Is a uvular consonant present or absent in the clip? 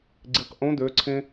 present